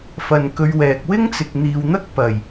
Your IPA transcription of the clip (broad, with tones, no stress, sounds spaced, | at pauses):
f ɐ˨ n k ɵ˨˧ ɥ w ɛː˨ k̚ w ɪ˥ ŋ t͡s ɪ˨ k̚ n̪ iː˨ w n̪ ɐ˥ k̚ p ɐ˨˩ j